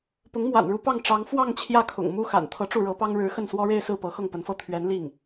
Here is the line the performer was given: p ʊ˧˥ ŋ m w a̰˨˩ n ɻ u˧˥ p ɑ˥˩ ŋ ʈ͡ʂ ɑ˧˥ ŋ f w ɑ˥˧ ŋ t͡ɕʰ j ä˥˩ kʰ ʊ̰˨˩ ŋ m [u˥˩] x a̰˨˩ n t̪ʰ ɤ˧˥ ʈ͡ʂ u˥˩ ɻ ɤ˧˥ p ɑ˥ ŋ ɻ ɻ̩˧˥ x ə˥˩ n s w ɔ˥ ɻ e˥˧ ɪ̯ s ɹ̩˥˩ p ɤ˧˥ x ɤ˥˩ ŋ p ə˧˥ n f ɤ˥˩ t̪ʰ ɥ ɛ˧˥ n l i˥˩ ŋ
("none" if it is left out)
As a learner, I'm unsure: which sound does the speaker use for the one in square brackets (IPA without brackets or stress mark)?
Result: u˥